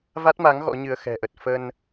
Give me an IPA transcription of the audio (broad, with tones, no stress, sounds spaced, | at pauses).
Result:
v a˦˥ t̚ m a˨˦ ŋ ɣ ɔ̰˧˥ ɲ ɨ˧ ə̯ x ɛ̤˨˩ ʔ ə˨˩ t̚ f ə˧ n